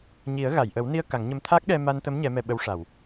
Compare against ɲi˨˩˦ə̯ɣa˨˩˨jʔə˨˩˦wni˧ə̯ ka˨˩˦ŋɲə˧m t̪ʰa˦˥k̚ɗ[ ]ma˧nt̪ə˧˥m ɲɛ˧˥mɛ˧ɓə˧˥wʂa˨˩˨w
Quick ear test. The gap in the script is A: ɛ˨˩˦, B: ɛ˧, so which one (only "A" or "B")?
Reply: B